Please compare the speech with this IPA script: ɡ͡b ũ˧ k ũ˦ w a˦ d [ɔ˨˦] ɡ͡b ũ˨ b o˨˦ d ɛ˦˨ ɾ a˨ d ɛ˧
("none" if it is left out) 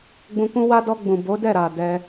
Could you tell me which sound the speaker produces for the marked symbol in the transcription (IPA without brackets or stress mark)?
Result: ɔ˧